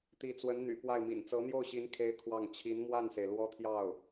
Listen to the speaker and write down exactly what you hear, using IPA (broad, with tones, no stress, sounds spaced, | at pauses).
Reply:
t̪ i˧˥ t͡s w ə˧˥ n n̪ y̰˨˩ p w a˥˩ ɪ̯ m ḭ˨˩ n t͡s ɤ˧˥ n̪ j o˥˩ ʊ̯ ɕ i˧˥ n kʰ e˥ ɪ̯ kʰ w ɑ˥˩ ŋ t͡ɕʰ i˧˥ n m w a˥˩ n s e˩ ɪ̯ l w ɔ˥ t̪ʰ j ɑ˥˩ ʊ̯